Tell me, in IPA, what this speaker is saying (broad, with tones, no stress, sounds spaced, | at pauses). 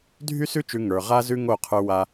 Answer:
dʱ y˦ s ʉ˦ t͡ʃ ʉ˧ ŋ ə˞˧ ʁ a˦ z ʉ˦ ŋ o˦˨ qʰ ə˞˦ w a˦